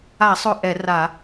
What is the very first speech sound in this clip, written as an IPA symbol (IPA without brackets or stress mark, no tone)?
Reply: a